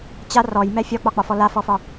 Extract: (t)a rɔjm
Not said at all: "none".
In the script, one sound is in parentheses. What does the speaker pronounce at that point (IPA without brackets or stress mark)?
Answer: t͡ɕ